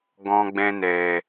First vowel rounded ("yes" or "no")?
yes